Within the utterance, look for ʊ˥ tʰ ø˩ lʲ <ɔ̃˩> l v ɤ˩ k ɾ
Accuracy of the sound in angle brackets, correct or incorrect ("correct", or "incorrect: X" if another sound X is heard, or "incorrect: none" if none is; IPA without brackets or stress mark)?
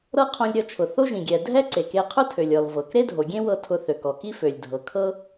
incorrect: ɔ˩